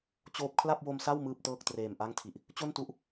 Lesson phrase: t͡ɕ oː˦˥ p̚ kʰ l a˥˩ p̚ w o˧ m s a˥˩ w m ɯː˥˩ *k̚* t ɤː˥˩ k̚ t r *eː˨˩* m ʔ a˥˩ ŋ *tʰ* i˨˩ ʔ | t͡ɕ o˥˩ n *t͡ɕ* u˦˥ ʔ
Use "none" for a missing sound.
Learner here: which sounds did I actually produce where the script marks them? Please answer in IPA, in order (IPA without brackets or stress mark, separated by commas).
p̚, eː˨˩, tʰ, t